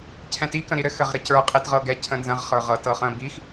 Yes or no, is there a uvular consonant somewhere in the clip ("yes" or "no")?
yes